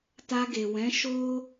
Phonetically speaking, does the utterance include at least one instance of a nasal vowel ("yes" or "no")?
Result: yes